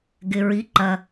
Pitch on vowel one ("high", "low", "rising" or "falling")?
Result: low